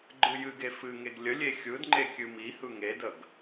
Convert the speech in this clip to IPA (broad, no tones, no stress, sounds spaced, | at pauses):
ɡ͡ǃ ɯ j ɨ ɡ e f ɨ ŋ e ɡ lʲ ə lʲ e xʲ ɯ d ŋ͡ǃ e kʲ ɨ m i h ɯ ŋ e d ə ɡ